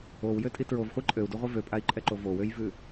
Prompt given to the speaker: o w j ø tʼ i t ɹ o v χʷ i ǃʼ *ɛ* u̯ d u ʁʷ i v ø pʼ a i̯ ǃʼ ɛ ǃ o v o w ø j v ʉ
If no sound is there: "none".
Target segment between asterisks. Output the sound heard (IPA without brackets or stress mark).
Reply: ø